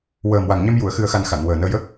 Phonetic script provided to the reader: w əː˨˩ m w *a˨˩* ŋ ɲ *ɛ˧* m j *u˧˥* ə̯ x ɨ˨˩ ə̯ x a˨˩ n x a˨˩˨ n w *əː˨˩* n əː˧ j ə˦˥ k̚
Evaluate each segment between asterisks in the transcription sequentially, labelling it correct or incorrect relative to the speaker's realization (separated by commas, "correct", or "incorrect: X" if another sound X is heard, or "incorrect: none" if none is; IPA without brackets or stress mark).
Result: correct, correct, incorrect: u˨˩˨, correct